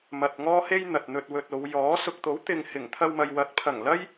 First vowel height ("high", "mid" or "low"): low